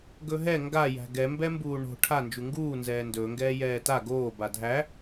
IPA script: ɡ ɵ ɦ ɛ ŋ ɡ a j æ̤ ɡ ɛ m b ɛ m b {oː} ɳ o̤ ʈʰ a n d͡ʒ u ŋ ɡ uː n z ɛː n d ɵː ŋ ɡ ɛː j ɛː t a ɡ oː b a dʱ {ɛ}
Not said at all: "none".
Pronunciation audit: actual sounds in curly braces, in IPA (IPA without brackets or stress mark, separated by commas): uː, æ